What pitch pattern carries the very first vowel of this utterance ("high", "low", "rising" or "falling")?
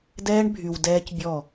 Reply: high